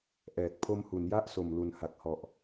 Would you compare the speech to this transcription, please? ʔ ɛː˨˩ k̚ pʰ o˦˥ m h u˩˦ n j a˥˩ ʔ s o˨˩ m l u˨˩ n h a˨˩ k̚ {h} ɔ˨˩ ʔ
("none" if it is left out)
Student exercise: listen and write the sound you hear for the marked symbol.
h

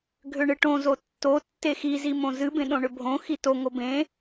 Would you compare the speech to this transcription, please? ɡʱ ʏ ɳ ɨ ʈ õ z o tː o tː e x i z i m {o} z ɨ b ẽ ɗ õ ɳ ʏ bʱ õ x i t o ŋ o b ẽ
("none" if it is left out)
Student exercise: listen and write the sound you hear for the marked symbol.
õ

